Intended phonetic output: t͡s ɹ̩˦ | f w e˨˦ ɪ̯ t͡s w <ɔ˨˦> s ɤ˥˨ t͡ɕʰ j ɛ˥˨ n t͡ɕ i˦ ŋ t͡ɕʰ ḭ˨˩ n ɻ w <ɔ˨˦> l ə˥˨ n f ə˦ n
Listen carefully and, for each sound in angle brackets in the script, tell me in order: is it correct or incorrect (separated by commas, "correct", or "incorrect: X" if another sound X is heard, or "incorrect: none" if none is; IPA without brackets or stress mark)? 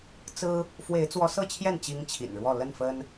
correct, incorrect: ɔ˥˨